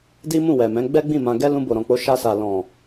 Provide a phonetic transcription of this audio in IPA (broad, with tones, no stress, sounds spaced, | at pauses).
d i˦ m ũ˦˨ w ɛ˨ m ɛ̃˨˦ ɡ͡b ɛ˦ ɡ͡b ĩ˦˨ m ã˧ ɡ ɛ˧ l ũ˧ b o˨ ɾ ɔ̃˨ k͡p o˨˦ ʃ a˧ s a˨ l ɔ̃˨